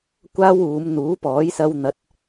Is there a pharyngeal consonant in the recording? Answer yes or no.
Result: no